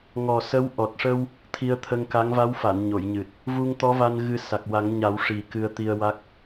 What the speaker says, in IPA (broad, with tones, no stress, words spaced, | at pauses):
ŋɔ˨˩sə˧˥w ʔɔ˨˩t̚ʂə˧w | t̪ʰi˧ə̯t̪ʰə˧ŋka˧˥ŋ va˧˥wfa˨˩˨nɲo˨˩˨jɲɨ˨˩t̚ | vu˧ŋt̪ɔ˧˥va˧n ɣɨ˧sa˨˩k̚wa˨˩˦ŋɲa˨˩˦w ʂi˨˩ kɨ˧ə̯t̪i˧ə̯wa˦˥k̚